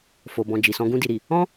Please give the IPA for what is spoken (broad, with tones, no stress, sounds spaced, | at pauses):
f o˨ b ɔ̃˨ d͡ʒ i˨ s ɔ̃˧ ɡ ũ˧ d i˨ ɾ i˨ | ɔ̃˦